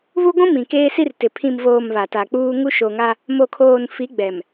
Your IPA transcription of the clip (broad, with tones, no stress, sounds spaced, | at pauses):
β u˦ ɡʷ ũ˦ m ĩ˨ k eː˦ s i˦ r t ɪ˨ pʰ ĩ˨ m v oː˨ m β a˨ t a˨ k͡p uː˦ ŋ u˦ ʃ o˨ ŋ a˦ | m o˨ kʰ oː˨ n f i˨˦ ɡ͡b ɛ˨ m